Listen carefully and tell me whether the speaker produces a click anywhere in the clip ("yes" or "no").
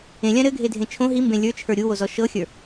no